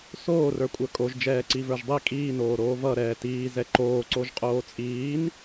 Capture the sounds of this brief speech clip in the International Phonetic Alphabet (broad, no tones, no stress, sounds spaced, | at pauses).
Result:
s oː r ə˞ kʷʼ ə˞ kʼ o ʒ d͡ʒ ɛː ǀ i v ə˞ ʒ dˤ i kʼ iː n oː ɾ oː v ʌ ɾ ɛː t iː z ɛ ǃ oː ǀ o ʒ qʼ oː t͡sʼ iː n